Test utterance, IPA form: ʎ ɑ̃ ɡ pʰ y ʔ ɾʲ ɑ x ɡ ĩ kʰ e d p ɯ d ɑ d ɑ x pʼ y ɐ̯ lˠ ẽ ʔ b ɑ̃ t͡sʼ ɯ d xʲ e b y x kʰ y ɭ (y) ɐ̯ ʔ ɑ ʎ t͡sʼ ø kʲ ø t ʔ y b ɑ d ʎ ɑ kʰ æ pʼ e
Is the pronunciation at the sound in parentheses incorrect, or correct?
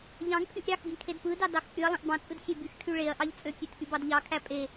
incorrect